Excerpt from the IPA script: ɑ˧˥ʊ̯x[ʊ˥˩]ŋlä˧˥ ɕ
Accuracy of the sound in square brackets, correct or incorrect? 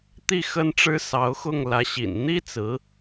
correct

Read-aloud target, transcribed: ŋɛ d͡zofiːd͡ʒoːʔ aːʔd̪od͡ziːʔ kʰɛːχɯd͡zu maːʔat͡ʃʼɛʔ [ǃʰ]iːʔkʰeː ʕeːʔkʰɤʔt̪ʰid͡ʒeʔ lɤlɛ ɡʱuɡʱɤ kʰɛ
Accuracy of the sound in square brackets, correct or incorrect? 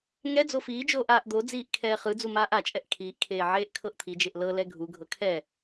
incorrect: kʰ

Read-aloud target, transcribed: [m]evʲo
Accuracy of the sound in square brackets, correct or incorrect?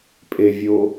incorrect: pʼ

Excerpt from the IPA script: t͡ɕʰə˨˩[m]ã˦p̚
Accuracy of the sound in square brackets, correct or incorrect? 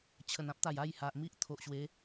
incorrect: n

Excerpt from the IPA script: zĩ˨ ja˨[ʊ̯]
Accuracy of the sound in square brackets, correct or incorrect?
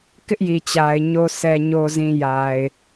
incorrect: ɪ̯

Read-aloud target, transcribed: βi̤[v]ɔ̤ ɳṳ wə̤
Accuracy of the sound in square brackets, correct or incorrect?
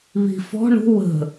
incorrect: f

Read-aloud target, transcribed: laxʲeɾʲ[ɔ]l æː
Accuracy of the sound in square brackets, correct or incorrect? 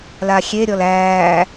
correct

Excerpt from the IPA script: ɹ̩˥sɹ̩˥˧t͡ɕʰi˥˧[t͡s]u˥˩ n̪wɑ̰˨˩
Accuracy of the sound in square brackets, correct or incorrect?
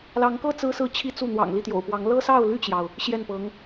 correct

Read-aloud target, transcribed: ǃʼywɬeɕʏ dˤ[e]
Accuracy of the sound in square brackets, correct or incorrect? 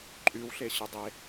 correct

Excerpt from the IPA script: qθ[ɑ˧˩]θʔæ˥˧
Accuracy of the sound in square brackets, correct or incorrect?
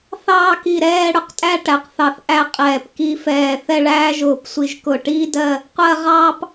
correct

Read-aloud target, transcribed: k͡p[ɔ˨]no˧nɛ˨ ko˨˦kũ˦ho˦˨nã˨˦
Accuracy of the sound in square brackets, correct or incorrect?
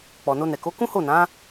correct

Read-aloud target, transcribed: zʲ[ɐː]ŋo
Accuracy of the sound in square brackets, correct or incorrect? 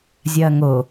correct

